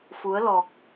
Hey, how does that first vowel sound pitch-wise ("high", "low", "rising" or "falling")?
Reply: rising